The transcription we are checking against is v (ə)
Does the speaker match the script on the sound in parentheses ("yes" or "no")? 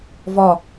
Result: no